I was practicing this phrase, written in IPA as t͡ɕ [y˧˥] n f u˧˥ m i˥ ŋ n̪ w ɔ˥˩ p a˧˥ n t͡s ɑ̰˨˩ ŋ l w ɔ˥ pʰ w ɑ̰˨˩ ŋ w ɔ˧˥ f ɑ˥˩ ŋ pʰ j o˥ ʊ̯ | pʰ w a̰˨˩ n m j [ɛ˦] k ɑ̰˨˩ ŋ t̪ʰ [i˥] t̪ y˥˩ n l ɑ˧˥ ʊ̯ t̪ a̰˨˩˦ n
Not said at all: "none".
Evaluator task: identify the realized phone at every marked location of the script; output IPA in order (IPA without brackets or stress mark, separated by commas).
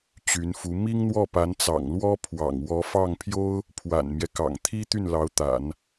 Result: y˧˥, ɛ˦, i˥